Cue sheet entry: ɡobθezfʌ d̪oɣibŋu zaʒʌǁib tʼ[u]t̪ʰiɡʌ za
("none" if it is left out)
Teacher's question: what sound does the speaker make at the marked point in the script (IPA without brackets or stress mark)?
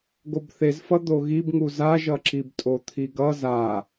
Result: o